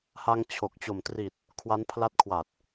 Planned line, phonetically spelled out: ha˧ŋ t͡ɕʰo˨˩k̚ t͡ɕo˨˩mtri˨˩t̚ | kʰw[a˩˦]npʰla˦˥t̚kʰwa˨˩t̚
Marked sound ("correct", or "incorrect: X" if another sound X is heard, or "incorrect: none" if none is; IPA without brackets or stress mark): incorrect: a˦˥